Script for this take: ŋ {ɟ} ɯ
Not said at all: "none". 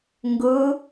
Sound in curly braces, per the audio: ɡ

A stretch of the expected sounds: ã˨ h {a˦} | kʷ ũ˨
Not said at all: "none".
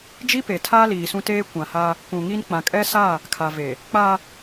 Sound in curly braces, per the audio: aː˦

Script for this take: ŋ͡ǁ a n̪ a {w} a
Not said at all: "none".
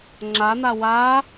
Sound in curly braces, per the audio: w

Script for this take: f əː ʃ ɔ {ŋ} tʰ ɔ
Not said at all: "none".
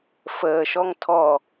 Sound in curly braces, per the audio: ŋ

